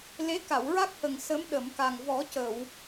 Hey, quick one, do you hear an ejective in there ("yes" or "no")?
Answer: no